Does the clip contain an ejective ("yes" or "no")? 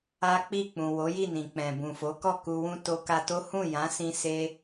no